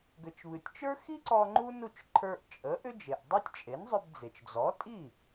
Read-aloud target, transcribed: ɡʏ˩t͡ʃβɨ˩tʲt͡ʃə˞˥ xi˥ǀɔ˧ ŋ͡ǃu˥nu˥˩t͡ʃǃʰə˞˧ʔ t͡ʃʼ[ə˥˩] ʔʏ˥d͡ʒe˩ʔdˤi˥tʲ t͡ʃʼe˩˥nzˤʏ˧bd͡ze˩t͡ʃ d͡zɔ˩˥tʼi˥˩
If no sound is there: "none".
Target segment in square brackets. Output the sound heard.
ə˩˥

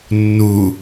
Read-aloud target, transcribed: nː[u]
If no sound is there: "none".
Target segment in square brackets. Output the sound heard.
u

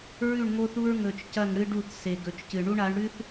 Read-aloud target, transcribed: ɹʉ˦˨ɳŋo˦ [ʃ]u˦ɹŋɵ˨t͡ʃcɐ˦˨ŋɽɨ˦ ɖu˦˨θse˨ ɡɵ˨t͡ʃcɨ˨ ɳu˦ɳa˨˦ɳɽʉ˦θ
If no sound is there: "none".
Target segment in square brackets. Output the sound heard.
θ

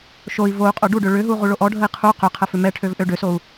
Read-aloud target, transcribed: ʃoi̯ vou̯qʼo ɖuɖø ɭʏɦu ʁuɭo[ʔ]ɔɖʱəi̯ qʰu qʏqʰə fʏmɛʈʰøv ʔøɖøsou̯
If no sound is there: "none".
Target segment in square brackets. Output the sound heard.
ʔ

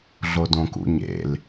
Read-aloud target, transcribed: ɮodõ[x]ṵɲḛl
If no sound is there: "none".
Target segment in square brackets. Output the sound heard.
k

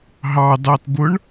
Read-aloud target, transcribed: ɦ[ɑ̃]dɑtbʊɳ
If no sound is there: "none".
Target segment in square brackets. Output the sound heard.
ɑ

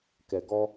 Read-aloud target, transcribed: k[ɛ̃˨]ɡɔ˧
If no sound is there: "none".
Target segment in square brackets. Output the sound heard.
ɛ˨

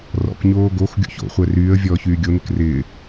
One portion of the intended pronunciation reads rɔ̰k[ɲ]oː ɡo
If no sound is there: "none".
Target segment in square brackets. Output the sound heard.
ɲ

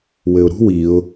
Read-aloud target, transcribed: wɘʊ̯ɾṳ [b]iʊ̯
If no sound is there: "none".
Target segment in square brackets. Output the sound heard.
w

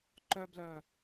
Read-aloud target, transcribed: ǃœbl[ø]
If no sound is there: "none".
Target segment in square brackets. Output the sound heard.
œ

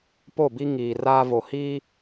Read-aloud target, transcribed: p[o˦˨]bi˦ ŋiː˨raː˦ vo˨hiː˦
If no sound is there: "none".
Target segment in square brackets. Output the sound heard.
o˦˨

